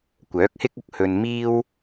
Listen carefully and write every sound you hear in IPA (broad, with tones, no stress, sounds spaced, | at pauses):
kʷ œː˨˥ k̚ h ɪ˥ k̚ ʊ˨˥ k̚ h ɵ˧ n m iː˥ w